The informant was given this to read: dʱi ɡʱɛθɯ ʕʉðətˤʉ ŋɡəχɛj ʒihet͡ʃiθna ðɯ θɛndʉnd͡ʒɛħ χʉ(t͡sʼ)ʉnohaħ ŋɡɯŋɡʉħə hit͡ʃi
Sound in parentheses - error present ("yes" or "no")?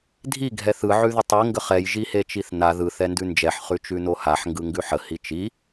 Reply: yes